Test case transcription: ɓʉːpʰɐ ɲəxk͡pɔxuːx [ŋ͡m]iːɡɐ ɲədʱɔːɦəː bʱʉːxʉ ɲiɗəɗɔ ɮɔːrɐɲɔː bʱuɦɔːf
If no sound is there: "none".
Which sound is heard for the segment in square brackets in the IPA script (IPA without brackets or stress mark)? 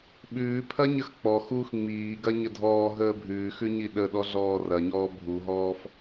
ŋ͡m